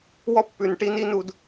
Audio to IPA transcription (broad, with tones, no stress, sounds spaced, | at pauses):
w ɔ˦ pː ʉ˨ n ʈ i˦ n i˦ n u˧ d